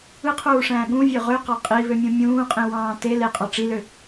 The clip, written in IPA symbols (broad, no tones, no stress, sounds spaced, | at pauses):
ɯ qʰ uː ʂ æ̃ː ɠ ũ vʲ ø ʁ ø q ɑ qʼ i β ø mʲ ũ mʲ ũː qʼ ĩ w ɑ̃ː t e l e qʼ ɑ ʈ͡ʂ i l ø